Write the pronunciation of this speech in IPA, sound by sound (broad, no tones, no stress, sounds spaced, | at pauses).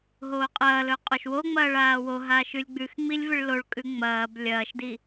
ɦ oː qʼ ɐː l ɵ qʼ o ʃ w o ŋ͡m ɐː ɭ aː w o ɦ a ʃ ʉ lʲ ɡ͡b ʉ x ŋ͡m i lʲ v ɨ ɭ l o ɭ kʼ ʉ ŋ͡m ɐː b lʲ ɐː ʃ d i